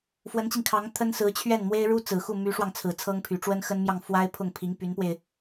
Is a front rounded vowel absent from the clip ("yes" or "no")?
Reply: no